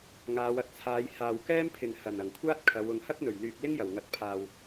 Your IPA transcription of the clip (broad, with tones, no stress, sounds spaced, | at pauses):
ŋ aː˨˧ w ɐ˨ t̚ t͡sʰ aː˨˧ j h aː˨ w k ɛː˥ m pʰ ɪ˨ ŋ h ɐ˨˩ n ɐ˨˩ ŋ kʷʰ aː˥ t̚ kʰ ɐ˨˧ w ʊ˨ ŋ h ɐ˥ k̚ n̪ ɵ˨˩ ɥ l yː˨ k̚ l ɪ˥ ŋ j ɐ˨˩ w ŋ ɐ˨ t̚ pʰ aː˨ w